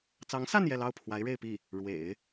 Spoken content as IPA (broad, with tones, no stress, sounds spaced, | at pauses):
t͡s ɑ˧˥ ŋ s a˥˧ n j ɛ˥˧ l ɑ˥˩ ʊ̯ pʰ w a˧˥ ɪ̯ ɻ e˥˧ ɪ̯ p i˥˩ | ɻ w ḛ˨˩˦ ɪ̯